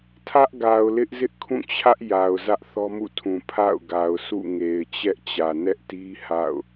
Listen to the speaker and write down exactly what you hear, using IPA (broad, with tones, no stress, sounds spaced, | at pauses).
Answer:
tʰ ä˦ ʔ ɡ a˨ ʊ̯ l ɪ˦ ʔ z ɪ˦ ʔ kʰ ũ˦˨ t͡ɕʰ ä˦ ʔ j a˨ ʊ̯ z ä˦ ʔ θ ɔ˦ m ṵ˦˨ tʰ ũ˨ pʰ a̰˦˨ ʊ̯ ɡ a˨ ʊ̯ s ṵ˦˨ ŋ e˨ ɪ̯ t͡ɕ ɛ˦ ʔ t͡ɕ ä˨ n ɛ˦ ʔ t i˦ h a̰˦˨ ʊ̯